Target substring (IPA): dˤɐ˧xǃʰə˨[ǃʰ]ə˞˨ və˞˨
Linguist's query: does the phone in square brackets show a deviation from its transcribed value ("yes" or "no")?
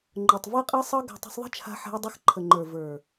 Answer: yes